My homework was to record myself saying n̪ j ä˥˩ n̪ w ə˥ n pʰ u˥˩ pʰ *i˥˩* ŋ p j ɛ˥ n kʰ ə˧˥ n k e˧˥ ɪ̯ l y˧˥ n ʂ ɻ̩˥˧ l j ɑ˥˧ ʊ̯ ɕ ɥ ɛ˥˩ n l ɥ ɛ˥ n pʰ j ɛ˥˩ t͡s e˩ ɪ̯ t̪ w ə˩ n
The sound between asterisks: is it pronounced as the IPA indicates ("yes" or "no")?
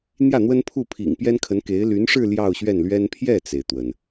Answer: no